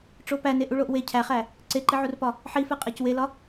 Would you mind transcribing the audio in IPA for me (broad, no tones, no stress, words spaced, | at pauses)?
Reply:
ʈ͡ʂopæne ʔuɭoʔwe cʰæχæ | ǀeǃiʕurpɒ | ħife qʼæcwelɒ